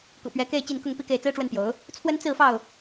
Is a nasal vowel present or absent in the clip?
absent